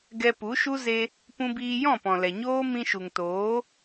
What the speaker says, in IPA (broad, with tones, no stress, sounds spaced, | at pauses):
ɡ ɛ˧ p u˨˦ ʃ u˦ z e˧ | p ũ˧ b iː˧ j ɔ̃˦˨ p ɔ̃˨ l ɛ˨ ɲ oː˦ m ĩ˧ ʃ u˨ ŋ t oː˨˦